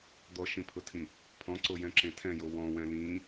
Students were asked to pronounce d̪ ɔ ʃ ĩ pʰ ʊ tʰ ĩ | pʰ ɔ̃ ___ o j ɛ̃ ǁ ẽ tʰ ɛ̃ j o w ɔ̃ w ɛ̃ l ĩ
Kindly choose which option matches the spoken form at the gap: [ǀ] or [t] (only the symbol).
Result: ǀ